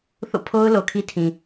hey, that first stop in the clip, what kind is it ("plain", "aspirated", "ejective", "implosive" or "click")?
aspirated